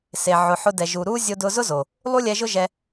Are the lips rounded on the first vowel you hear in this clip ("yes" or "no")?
no